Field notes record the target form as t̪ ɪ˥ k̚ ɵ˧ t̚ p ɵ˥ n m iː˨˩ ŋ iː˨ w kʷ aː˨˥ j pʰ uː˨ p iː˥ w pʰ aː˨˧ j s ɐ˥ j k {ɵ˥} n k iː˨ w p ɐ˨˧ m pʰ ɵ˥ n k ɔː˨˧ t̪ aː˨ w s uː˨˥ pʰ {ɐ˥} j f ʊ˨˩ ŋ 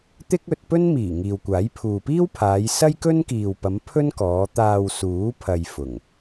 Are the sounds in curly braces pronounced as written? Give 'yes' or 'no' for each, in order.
yes, no

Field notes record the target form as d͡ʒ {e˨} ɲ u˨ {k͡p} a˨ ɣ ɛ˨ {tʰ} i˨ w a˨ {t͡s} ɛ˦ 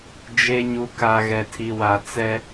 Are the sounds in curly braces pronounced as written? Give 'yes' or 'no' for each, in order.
yes, no, yes, yes

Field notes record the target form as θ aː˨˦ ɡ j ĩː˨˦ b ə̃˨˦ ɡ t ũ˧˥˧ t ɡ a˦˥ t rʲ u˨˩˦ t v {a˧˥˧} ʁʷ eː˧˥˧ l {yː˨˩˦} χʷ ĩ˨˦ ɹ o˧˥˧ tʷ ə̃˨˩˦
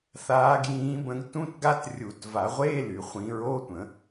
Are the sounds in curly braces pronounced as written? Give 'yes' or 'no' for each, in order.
no, no

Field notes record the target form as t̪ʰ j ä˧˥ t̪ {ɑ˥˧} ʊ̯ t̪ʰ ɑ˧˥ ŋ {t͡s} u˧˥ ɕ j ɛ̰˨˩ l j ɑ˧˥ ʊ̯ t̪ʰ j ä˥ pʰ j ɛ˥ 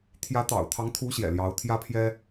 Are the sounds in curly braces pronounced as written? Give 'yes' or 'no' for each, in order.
no, no

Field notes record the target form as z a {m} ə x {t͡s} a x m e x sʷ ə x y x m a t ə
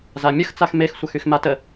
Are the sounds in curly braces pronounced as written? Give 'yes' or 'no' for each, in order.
no, yes

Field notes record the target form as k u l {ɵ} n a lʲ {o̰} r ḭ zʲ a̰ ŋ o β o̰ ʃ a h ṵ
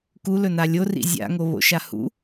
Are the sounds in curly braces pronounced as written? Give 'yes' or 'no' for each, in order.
yes, no

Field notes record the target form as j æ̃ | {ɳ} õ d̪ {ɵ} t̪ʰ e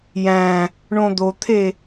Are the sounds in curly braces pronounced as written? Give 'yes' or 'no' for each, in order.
yes, no

